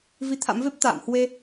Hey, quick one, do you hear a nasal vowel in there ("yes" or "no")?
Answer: no